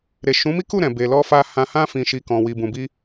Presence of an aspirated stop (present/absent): absent